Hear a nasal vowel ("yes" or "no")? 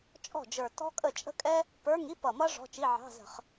no